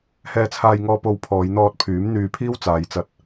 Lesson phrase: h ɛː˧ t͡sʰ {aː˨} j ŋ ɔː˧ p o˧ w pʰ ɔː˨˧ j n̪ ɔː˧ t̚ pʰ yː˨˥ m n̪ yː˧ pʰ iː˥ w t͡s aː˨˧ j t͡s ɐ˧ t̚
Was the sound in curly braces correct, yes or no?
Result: no